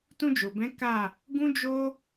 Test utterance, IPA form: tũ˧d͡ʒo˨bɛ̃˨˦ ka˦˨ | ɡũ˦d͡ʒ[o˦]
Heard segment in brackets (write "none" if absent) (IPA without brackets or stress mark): o˦